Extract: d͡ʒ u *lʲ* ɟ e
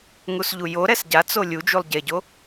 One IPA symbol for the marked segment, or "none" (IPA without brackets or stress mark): lˠ